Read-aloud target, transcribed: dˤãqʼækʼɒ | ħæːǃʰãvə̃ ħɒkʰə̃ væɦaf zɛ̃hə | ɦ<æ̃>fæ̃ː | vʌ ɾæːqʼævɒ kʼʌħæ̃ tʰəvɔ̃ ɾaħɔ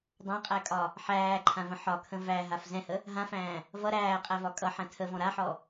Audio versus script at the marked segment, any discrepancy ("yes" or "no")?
yes